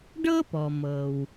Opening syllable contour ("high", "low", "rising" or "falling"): high